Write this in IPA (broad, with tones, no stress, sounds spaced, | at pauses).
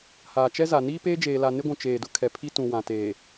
h aː˨ t͡ʃ ɛ˦ z a˨ n iː˦ p eː˦ d͡ʒ eː˨ l a˨ n ɪ˦ ɡʷ ũ˨ t͡ʃ eː˨ d ʊ˦ kʰ ɛ˨ pʰ i˦ t ũ˨ w ã˨ t eː˨